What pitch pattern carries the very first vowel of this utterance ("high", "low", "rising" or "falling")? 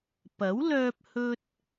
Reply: rising